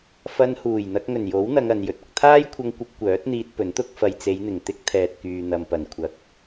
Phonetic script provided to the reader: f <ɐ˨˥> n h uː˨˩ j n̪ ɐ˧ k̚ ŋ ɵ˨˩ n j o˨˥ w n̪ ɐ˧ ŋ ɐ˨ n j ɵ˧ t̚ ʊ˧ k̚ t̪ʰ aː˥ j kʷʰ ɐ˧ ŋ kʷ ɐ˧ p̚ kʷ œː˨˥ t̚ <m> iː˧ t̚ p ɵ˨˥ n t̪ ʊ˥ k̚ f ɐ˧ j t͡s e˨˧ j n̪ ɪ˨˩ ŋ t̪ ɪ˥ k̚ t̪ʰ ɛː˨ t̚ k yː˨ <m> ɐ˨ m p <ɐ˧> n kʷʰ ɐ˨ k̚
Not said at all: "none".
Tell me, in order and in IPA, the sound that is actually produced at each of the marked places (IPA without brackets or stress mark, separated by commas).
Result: ɐ˧, n̪, n̪, ɐ˨˩